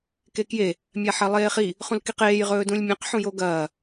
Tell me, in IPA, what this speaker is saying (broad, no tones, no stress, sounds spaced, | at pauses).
k e k j e | mʲ a ħ ɐ lˠ eː χ i | χ ũ l k i q eː j ʁ ɵː d ũ lʲ mʲ ã q ħ ũ j o ɡ ɐː